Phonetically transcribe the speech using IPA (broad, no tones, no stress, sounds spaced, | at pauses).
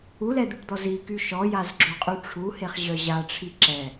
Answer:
u l ɛ d̪ u ʈ d̪ ɔ z i k y ʃ ɔ j a z ɡ͡ǁ o qʼ y ʈ͡ʂʰ u h e χ ʑ œ ʑ a ʈ͡ʂʰ i ǁ ɛ